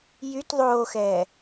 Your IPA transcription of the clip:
j y t ðˤ oː x ɛː

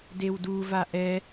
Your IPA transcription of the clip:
d e w d u v a ʔ ɛ

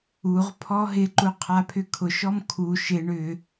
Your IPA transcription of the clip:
u ʁ pʰ ɔ ɦ ɪ ǃ u qʰ a pʰ ʏ kʰ ʊ ʃ ɔ m kʰ u ʃ ɪ ɳ ʏ

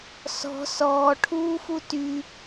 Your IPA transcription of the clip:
s ɔ̤ s ɔː ʈʰ uː f u t y

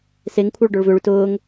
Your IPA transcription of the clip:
s e ŋ kʷʰ œ ɭ ɖ œ ɭ v ʏ ɭ y t ʊː ŋ

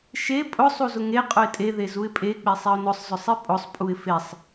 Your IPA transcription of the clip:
ʃ e pʼ ʊ sˤ u z ʊ ŋ e qʼ ʊ ɪ̯ tʼ e ð e z u ɪ̯ pʼ e k͡p e sˤ e ʊ̯ n ʊ sˤ z ʊ sˤ i pʼ ʊ sˤ pʼ u ɪ̯ f e sˤ

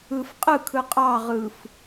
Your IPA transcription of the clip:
ɯ f qʼ ɯ kʰ ɯ qʼ ɑ ʁ ɯ f

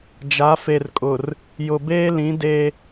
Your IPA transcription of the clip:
d͡ʒ a˨˦ f e˨ r kʼ ʊ˨ r | j ʊ˨ b eː˦ l ĩ˨˦ d e˦

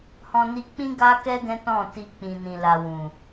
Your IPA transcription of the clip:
h ɔ̃˧ n i˧ k͡p ĩ˦ ɡ a˦ k ɛ˦ ɡ ɛ̃˦ t ɔ̃˦˨ t i˧ k͡p ĩ˨ n ĩ˨ l a˨ w ũ˨

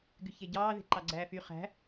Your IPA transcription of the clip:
ɡ y ç e ɟ ɑː ð e̤ ǃ ɑ ɡ͡ǀ æː f y χ æ̤

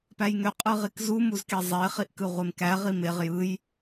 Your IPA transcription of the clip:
p æ j ŋ ø qʼ ɯ ʁ i k z u m u z k e zˤ e χ i ʔ k ɯ ʁʷ e m k æ ʁ i m e ʁ j ɯ j

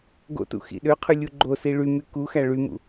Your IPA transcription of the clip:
ɡ o̰ t ṵ x ḭ ɗ ø qʰ ʉ lʲ u ɡ͡ǃ o s i ɭ y m y k u x æ ɭ y m ṵ

